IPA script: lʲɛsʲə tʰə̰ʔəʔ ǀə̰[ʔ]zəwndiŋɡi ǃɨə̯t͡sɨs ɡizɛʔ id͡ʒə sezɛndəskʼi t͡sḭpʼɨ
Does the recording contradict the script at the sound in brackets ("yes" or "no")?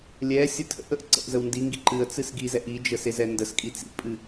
no